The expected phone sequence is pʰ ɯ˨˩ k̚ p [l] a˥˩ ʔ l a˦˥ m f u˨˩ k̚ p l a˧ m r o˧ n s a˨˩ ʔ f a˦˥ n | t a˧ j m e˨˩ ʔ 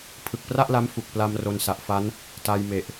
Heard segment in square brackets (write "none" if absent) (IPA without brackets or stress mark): r